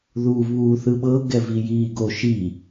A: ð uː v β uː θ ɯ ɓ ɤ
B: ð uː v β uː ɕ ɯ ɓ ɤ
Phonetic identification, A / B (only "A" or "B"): A